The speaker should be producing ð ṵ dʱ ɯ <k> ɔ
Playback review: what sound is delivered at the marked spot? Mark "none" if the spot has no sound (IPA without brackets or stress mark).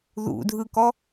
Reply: k